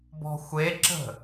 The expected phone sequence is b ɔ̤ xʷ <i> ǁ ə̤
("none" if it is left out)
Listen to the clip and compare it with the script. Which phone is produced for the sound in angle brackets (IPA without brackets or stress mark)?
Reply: e